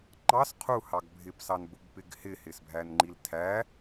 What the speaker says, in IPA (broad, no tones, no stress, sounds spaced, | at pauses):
ŋ͡ǃ ɑ s qʰ u h ɑ ɡ bʱ ɪ p s ɑ n b ʊ b p ɪ ɡ h ɪ h ɪ s bʱ æ n ŋ͡ǃ i l tʰ æ